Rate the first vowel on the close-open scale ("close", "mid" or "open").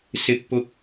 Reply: close